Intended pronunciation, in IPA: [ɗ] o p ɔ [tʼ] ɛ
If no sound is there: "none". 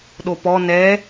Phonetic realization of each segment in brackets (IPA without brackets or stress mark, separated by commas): ɗ, n